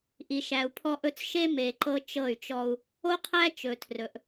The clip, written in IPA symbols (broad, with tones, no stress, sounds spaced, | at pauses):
ʔ i˨ ʃ æ˨ u̯ pʰ ɔ˦ ʔ ɵ˦ t͡s ʃ e˦ m e˨ ǃ ɤ˦ t͡ʃ ɤ˦˨ y̯ t͡ʃ ɔ˦ u̯ | o˦ qʰ æ˦ t͡ʃ ɵ˨ tʰ r ɵ˨ ʔ